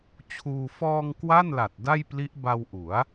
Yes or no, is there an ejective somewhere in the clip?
no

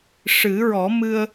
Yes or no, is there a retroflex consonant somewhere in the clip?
yes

